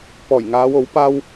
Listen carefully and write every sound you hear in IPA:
p ɔː˨˩ j ŋ aː˨˧ w o˨˥ w p aː˥ w

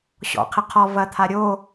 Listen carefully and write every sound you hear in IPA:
ɕ ɔ̰ qʰ ɪ qʰ ɔ v ɐ t̪ʰ a ɾʲ o

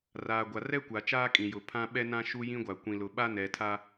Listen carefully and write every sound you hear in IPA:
r aː˨ ɡʷ a˨ r ɛ˦ kʷ a˨ t͡ʃ aː˦ kʼ ĩ˨ j ʊ˨ pʰ ã˦ ɓ ɛ˦ n ã˦ ʃ u˦ j ĩ˦ ɡʷ a˨ kʷ ĩ˨ l ʊ˨ ɓ a˦ n ɛ˨ tʰ a˦

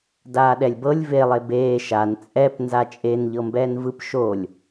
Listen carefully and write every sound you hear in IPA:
d aː ɗ ɛ lʲ b ɤ lʲ v e lˠ e b eː ʃ a n t͡sʼ ɛ p n z a t͡ʃʼ e n ʎ ɤ m b ɛː n v ɯ p ʃ o lʲ

